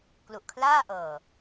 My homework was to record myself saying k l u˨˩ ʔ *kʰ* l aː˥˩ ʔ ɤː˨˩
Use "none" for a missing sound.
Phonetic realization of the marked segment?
kʰ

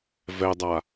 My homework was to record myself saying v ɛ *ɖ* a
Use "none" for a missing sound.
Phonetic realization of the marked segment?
dˤ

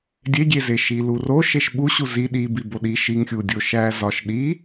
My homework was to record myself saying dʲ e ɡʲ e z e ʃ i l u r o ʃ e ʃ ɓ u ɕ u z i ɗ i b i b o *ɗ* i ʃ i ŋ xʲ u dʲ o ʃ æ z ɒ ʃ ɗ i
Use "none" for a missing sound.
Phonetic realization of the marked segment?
ɗ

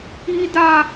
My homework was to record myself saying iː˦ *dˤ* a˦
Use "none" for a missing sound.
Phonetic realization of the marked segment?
d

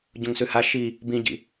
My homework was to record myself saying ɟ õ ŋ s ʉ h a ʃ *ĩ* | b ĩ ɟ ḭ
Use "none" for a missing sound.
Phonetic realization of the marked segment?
i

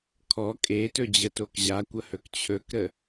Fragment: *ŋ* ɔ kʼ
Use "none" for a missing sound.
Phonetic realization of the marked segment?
kʰ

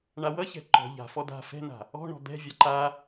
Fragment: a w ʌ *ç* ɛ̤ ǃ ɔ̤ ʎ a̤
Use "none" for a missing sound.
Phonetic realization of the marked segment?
ç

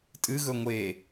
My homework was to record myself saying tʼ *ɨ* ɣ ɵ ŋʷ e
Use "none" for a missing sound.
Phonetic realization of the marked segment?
ɨ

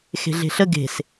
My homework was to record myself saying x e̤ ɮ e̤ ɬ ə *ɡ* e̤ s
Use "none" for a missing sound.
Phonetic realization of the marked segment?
ɡ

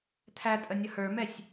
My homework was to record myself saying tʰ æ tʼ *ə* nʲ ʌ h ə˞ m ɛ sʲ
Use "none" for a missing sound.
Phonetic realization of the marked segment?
ə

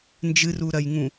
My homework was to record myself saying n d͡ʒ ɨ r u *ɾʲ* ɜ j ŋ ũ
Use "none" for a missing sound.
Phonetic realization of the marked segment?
ɾ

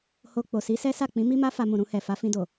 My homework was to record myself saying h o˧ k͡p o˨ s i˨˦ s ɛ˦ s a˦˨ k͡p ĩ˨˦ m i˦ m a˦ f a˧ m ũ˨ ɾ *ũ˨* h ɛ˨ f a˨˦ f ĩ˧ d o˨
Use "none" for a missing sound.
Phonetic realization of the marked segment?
ũ˧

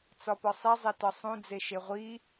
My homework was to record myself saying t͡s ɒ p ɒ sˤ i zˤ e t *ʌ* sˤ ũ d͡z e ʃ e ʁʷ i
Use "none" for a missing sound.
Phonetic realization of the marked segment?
ɒ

